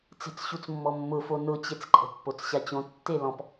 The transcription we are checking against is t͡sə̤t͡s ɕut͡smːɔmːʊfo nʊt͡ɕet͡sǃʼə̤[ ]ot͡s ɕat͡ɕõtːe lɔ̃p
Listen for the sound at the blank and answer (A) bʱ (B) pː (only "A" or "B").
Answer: B